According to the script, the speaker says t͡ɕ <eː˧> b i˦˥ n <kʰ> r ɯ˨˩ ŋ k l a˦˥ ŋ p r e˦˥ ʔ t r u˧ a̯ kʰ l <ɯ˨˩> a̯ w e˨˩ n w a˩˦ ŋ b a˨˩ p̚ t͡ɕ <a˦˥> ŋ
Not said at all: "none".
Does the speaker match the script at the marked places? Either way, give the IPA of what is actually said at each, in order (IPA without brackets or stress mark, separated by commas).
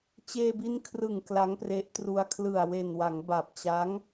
eː˧, kʰ, ɯ˨˩, a˦˥